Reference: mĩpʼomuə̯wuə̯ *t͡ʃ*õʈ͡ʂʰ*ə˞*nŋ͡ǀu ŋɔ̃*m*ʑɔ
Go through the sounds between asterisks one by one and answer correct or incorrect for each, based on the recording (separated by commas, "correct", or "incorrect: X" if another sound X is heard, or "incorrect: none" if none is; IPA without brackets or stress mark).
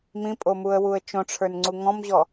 correct, correct, correct